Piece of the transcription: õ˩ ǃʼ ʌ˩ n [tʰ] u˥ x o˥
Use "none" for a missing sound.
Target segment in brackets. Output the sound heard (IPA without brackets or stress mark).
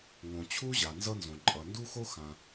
d